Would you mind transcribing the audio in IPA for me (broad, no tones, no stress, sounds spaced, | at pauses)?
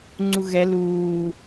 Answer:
ŋ͡ǀ u ɣ ɛ l uː